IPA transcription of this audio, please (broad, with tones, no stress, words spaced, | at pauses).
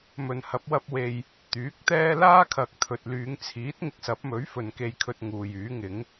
mɵ˨nhɐ˨˥p̚wɐ˧p̚we˨j | t̪yː˨˥k̚t̪ɛː˥ laː˥kʰɐ˨k̚ t̪ʰɵ˨t̚ lyː˨˧ŋt͡sʰiː˨˥t̚ ŋɪ˧k̚sɐ˨˥p̚mɵ˨˥ɥ fɵ˨nke˧jkʰɵ˧t̚ ŋuː˨jyː˨˥ŋɪ˨˥ŋ